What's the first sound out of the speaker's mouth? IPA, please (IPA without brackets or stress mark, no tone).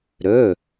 ɾ